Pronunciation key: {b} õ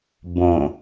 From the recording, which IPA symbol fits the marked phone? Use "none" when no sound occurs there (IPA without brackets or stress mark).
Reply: b